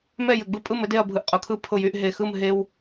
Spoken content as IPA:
m ɛ˥˨ j ɘ˧˩ ɡ͡b ɯ˥˨ pʼ ɯ˥˨ m ɘ˦ d e˥˨ ɐ̯ bʱ ɯ˧˩ ʔ qʼ ʊ˧˩ kʰ ɯ˥˨ pʰ ʊ˥˨ j y˦ ʔ ɦ e˧˩ x ɯ˥˨ m ɦ e˦ w

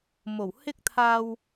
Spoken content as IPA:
m o˨˩ w h ɪ˥ k̚ t̪ʰ aː˧ w

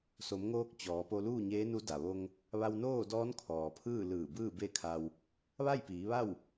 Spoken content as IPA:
s o˩˧ m ŋ oː˧ k̚ t͡ɕ ɔː˩˧ p o˧ l uː˥˨ ɲ eː˧˥ n u˧˥ d a˩ ʋ o˧ ŋ | ʋ a˧ w n oː˥˨ d ɔː˧˥ n kʰ ɔː˩ pʰ ɯː˥˨ l ɯː˧˩ b ɯː˥˨ b e˥˨ kʰ a˧ w | ʋ a˥˨ j p iː˩˧ ʋ a˥˨ w

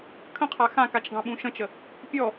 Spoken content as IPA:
kʰ ə̃ qʰ a x ã k a t͡ʃ ɡ ɑ̃ ɓ ũ ʃ ə̃ t͡ʃ ə | pʲ ɔ

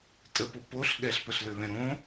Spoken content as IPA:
tʼ ə p o p o ɬ ɠ ɛ ɬ p ə ɬ l ø β ɛ̃ ɾ õ

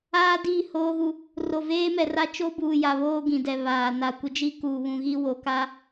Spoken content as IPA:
aː˦ d i˦˨ h oː˦ ɣ u˦ | r o˨ v eː˦ m ɛ˨ r a˦ t͡ʃ o˦ b uː˨ j a˨ β oː˦ ɡ ĩ˨ d ɛ˨ β aː˨ n a˨ kʷ ɪ˦ d͡ʒ i˦ k uː˨ β ũ˨ ɣ i˦ w o˨ k a˦

